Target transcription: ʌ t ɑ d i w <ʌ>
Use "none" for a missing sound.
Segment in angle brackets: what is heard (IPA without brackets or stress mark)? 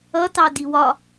ɒ